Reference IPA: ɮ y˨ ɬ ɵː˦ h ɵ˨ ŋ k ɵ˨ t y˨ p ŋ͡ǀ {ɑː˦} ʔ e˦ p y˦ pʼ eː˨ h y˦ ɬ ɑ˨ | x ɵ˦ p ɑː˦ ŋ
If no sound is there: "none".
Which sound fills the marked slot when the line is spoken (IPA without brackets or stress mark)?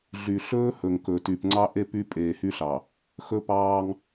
ɑ˦